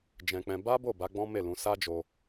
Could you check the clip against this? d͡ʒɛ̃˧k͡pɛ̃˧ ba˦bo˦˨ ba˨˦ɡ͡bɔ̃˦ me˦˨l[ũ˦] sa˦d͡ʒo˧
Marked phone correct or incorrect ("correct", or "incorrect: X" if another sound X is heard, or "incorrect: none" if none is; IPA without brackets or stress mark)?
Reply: incorrect: ũ˧